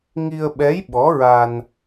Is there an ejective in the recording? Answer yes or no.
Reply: no